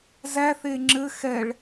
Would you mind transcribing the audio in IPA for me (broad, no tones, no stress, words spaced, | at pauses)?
zæ θeŋ͡ǁɘ xɛɭ